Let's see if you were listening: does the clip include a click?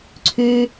yes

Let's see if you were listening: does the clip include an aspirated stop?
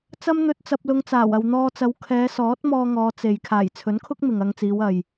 yes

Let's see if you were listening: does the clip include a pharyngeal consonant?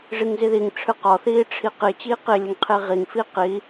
no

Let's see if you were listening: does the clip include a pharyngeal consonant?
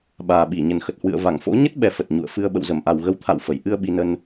no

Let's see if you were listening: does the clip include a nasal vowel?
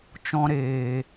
yes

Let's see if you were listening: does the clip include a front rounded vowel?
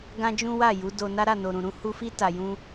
no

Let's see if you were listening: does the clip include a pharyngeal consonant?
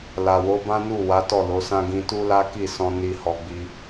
no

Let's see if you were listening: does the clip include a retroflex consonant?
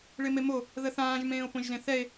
yes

